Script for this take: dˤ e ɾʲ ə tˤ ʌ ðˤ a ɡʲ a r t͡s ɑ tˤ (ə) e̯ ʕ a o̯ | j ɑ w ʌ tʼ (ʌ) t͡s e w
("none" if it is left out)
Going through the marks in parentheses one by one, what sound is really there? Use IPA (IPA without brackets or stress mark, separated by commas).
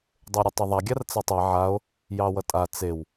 ə, a